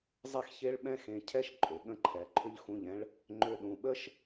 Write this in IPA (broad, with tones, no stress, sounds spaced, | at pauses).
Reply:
zˤ e˥ x ç e˥ ɭ ɓ ɛ̃˥ x ẽ˧ cʰ ɛ˥˧ ʃ ǃʼ ʏ˩˧ ɠ ə̃˧ ǃʰ ɛ˩˧ ǃʰ ʏ˧ ʎ x ũ˧˩ ʎ ɛ̃˧ ɭ | ŋ͡ǃ ʏ˧ ɗ ũ˩˧ ɓ ə˥ ʃ